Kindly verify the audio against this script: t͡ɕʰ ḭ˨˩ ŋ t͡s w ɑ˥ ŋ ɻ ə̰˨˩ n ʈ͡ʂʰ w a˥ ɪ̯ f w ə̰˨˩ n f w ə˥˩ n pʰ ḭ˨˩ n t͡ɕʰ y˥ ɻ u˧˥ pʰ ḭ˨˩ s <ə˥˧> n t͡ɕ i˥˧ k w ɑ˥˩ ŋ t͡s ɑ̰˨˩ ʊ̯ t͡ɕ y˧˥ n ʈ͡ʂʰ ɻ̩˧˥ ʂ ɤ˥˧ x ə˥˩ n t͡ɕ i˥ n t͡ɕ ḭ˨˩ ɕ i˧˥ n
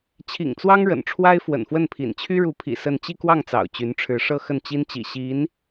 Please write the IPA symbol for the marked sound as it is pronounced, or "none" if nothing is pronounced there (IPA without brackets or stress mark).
ə˥˧